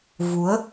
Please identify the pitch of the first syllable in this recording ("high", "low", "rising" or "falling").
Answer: rising